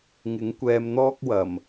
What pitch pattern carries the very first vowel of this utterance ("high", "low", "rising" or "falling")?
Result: rising